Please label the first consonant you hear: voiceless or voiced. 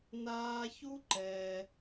voiced